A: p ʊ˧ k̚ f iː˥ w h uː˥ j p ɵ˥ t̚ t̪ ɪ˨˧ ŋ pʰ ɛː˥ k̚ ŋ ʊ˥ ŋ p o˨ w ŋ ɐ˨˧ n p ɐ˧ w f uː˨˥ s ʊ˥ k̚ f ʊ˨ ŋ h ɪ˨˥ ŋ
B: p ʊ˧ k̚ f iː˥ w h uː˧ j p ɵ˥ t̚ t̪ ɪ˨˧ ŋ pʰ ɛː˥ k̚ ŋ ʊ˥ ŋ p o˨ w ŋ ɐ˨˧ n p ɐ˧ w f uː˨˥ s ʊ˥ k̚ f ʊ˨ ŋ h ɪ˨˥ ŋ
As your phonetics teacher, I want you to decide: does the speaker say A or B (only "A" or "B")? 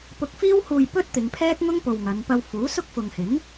B